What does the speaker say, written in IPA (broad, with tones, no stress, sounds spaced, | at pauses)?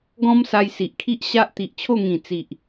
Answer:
ɡ ɔ̃˦ m s a˧ j s i˨ ʔ kʰ i˦ ʔ ɕ a˦ ʔ t̪ i˨ ʔ t͡ɕʰ o˥˧ ŋ ĩ˨˩ t͡s i˨ ʔ